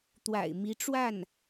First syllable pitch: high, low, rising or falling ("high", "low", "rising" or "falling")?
low